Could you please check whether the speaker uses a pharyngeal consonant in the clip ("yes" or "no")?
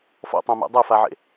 yes